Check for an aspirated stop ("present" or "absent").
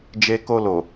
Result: absent